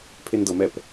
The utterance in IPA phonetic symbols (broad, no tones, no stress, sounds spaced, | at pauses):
pʰ e n d ɤ m ɛ p